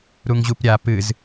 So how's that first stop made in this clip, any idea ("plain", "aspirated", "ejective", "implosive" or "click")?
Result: plain